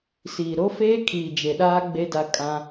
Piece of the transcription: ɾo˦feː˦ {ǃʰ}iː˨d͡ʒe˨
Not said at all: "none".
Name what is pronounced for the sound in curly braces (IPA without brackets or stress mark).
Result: kʰ